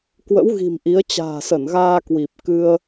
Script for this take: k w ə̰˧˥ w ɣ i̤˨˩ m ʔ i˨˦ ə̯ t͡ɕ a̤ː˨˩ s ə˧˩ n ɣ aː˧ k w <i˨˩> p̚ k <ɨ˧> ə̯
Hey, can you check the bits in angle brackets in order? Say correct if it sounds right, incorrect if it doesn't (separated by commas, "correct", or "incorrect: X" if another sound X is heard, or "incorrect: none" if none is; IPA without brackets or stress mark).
correct, correct